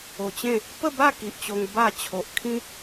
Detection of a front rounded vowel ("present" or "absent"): absent